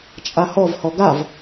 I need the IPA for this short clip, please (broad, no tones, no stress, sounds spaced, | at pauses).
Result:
t͡ʃʼ a h ɔ v h ɔ ɡ a v